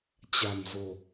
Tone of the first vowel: low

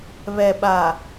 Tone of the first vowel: low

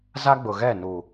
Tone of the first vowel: high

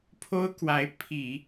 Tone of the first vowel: high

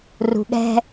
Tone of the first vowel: low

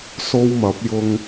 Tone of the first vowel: high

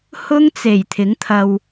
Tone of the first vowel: high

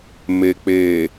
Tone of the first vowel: low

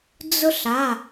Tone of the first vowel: high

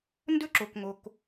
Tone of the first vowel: high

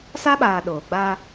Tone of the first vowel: high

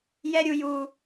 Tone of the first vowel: high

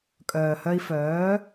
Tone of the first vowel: low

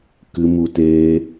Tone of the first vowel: high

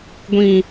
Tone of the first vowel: low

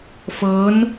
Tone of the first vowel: rising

